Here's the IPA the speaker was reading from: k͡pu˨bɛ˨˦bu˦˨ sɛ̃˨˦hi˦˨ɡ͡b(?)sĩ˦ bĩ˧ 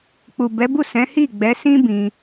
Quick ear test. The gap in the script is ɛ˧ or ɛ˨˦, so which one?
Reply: ɛ˨˦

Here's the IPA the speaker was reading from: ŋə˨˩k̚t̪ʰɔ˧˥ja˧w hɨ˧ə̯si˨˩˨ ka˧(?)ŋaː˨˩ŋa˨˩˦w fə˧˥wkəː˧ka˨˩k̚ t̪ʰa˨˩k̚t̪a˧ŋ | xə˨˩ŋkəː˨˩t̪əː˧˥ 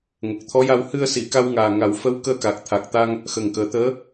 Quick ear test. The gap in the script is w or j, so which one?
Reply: w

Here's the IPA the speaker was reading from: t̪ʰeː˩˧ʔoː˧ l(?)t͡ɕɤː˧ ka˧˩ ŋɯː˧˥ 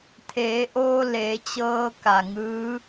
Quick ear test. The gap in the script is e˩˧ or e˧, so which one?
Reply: e˩˧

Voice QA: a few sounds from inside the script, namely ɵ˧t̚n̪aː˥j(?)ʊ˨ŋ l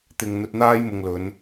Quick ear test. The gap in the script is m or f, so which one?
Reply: m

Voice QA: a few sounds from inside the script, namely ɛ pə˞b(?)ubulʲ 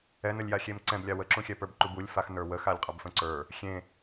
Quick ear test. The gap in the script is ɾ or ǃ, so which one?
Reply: ǃ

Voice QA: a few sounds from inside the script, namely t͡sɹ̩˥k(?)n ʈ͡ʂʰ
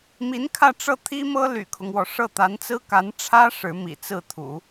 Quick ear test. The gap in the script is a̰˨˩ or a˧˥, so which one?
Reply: a˧˥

